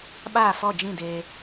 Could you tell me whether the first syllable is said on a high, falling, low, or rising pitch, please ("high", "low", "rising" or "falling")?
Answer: falling